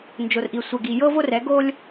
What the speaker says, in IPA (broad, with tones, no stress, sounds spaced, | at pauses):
n d͡ʒ o˨ r ʔ i˨ sʷ ɛ˨ ɡ i˨ j ɤ˦ v o˦ r ɛ˨˦ ɡ o˦ lʲ